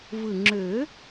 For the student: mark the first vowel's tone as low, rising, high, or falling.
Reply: low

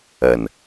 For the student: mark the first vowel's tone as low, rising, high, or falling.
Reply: low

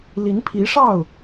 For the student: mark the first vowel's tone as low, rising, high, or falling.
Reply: rising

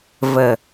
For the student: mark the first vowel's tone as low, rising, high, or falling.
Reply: low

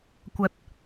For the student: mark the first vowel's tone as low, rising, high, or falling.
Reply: high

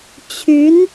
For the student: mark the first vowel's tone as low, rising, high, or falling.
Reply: rising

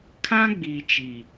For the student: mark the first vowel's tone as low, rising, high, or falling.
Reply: high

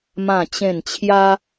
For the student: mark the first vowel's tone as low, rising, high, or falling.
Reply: falling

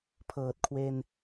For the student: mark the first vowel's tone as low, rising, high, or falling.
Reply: low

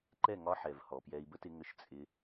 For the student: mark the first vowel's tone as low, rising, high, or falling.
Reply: falling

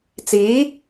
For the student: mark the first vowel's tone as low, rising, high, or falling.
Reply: rising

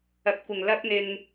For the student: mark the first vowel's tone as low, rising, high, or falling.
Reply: rising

